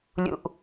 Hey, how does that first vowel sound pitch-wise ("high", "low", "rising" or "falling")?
low